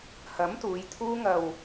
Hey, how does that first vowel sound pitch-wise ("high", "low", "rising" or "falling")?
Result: rising